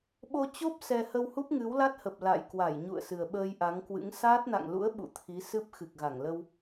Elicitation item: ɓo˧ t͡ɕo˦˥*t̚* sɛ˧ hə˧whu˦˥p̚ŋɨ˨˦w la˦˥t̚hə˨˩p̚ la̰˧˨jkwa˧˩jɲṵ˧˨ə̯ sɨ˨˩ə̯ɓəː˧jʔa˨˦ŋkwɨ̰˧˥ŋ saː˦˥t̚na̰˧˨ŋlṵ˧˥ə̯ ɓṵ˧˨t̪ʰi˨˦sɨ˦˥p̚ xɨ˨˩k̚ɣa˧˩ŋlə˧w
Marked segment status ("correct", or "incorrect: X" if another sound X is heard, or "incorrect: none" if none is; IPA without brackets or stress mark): incorrect: p̚